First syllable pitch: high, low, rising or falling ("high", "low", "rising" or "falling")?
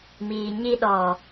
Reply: low